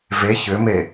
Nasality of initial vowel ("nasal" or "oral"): oral